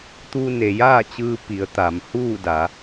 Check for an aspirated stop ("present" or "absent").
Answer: absent